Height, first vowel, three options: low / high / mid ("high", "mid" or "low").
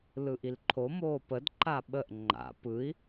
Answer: high